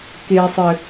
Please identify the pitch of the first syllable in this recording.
low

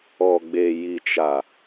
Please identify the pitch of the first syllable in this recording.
low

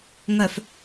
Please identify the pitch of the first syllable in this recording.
low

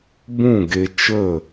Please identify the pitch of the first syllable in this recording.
falling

